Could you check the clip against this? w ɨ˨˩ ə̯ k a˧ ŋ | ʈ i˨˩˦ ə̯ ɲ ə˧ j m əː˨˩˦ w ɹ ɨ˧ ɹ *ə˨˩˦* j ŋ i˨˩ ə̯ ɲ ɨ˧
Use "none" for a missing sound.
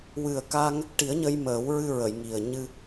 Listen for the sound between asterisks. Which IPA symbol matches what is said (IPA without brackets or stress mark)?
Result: ə˨˩˨